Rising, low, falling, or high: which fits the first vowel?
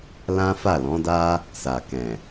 high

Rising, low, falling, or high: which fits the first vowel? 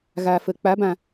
low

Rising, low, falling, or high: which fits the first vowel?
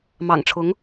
low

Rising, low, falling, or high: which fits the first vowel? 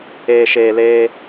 low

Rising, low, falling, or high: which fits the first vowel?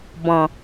low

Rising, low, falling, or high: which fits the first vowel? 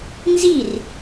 falling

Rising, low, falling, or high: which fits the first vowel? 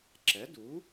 rising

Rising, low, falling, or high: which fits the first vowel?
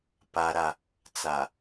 high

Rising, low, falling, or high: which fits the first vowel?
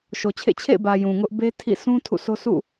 low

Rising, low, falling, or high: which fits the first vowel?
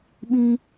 high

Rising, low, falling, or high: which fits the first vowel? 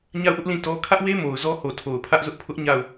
falling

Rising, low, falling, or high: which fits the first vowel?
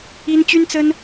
high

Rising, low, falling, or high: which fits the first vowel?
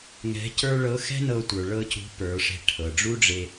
rising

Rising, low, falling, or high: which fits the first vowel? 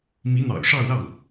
rising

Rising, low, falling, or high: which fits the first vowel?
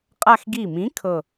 falling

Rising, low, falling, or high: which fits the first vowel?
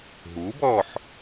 rising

